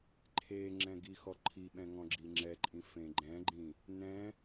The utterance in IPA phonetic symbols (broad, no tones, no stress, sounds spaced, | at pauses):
ǃʰ e ŋ͡ǁ ɛ̃ ɡ i x ɔ ǃʰ i ɓ ɛ̃ ŋ ɔ̃ ɡ͡ǁ i ŋ͡ǁ ɛ ǃʼ ĩ f ẽ ɡ͡ǃ ɛ̃ ɡ͡ǃ ĩ | n ɛ̃